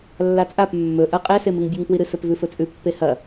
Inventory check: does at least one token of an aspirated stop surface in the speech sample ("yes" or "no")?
no